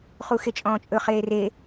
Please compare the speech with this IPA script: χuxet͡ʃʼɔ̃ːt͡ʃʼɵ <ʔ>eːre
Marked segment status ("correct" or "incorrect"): incorrect